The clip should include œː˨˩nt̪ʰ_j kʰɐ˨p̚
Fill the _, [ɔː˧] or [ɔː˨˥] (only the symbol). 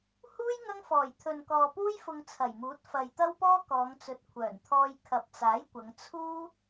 ɔː˧